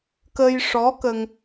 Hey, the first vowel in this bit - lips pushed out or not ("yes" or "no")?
no